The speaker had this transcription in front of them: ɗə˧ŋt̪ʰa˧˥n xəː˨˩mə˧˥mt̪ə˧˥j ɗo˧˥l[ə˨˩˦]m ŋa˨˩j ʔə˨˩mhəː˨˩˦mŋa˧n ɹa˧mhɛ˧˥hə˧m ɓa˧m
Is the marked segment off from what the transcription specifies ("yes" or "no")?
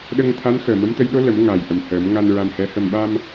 no